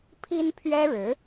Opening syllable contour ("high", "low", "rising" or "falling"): high